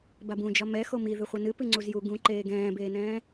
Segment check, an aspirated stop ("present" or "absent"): absent